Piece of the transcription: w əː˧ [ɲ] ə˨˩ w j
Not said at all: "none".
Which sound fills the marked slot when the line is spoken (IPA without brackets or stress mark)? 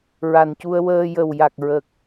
j